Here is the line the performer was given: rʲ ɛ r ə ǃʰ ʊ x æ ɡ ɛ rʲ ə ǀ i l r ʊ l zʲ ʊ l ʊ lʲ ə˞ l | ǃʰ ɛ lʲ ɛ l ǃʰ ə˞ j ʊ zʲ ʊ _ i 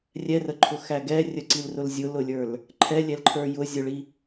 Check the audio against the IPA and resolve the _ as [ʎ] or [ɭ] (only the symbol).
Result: ɭ